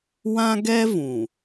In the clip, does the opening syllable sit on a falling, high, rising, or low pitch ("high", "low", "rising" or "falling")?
high